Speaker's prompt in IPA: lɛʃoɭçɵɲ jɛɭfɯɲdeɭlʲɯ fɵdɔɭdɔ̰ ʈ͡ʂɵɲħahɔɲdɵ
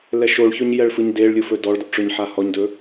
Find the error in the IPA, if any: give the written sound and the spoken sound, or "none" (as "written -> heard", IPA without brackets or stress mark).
none